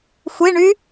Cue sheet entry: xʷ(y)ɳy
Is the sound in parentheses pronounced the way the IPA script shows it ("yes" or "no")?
no